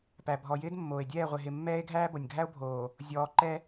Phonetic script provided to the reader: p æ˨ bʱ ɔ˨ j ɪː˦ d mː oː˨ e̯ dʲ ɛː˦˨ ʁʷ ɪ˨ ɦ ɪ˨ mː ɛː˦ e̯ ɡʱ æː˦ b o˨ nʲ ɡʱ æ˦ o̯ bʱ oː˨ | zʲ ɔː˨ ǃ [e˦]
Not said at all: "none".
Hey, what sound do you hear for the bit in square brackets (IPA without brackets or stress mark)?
ɛ˦